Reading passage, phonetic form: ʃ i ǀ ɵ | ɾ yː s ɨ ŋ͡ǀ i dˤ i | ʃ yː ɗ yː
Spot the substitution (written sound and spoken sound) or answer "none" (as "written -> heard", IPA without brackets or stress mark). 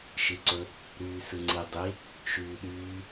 none